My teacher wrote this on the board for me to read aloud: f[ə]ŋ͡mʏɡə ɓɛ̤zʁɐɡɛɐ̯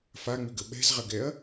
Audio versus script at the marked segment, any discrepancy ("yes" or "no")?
yes